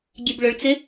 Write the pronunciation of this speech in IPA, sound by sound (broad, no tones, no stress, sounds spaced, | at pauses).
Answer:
ɡʲ e b ɭ ʊ ɭ t͡s ɪ